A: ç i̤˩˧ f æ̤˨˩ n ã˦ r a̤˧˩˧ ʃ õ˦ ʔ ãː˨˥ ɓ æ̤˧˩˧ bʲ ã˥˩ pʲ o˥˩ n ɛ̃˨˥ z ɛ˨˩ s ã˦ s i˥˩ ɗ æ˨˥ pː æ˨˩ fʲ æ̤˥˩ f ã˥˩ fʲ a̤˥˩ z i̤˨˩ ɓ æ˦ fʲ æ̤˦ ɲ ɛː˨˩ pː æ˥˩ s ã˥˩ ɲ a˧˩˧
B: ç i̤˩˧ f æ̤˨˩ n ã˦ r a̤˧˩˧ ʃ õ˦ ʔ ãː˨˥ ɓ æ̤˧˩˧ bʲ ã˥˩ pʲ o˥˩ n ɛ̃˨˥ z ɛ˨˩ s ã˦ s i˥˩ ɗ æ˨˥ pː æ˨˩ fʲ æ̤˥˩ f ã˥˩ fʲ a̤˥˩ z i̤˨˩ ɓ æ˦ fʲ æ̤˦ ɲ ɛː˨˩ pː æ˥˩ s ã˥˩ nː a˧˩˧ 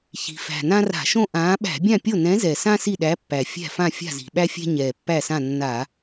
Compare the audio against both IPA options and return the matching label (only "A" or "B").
B